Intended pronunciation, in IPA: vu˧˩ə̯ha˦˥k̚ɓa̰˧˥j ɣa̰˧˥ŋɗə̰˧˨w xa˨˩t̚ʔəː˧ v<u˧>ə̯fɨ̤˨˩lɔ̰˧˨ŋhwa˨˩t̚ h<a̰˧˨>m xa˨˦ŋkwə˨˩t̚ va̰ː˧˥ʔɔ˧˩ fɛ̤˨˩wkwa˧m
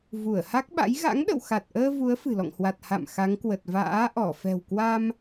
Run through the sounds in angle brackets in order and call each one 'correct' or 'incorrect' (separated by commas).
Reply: incorrect, correct